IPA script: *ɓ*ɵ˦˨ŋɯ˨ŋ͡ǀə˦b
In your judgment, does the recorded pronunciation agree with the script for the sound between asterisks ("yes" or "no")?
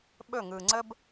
yes